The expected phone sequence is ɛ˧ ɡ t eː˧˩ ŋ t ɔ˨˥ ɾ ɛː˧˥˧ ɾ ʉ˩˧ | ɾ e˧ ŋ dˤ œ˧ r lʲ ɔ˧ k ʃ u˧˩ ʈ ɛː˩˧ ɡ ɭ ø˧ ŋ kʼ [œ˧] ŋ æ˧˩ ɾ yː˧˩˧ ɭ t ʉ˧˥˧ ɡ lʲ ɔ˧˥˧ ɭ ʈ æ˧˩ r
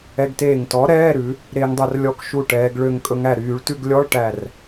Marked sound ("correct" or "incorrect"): incorrect